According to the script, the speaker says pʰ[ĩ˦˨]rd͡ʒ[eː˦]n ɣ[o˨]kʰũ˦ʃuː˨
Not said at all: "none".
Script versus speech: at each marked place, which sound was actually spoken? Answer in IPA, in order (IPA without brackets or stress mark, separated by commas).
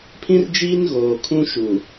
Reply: ĩ˦, iː˦, oː˨